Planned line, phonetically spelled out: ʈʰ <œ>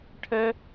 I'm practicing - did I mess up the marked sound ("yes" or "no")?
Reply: yes